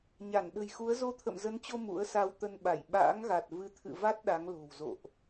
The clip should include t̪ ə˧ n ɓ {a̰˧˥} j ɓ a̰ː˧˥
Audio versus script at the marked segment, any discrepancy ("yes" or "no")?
yes